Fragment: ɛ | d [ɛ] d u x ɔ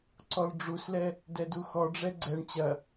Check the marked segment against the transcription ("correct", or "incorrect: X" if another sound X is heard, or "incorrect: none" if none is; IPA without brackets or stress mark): correct